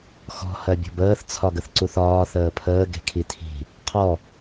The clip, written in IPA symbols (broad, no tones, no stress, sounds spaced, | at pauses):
x ɔ̤ h ɜ bʲ ɔ̤ b əː θ t͡sʰ ɒ ɡ ə θ ǀ u θ ɒː θ əː pʰ əː ɡ e̤ kʰ i tʰ i̤ | qʰ ɔ